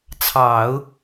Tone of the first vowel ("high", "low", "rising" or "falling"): low